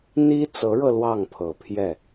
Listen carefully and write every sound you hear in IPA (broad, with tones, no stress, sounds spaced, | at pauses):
n̪ i˥ t͡s ɤ˧˥ ɻ ɤ˧ l w ɑ˥˩ ŋ pʰ ɤ˨˩ pʰ j ɛ˥˩